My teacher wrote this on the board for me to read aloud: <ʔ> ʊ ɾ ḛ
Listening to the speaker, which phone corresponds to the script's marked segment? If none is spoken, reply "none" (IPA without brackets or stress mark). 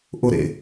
ʔ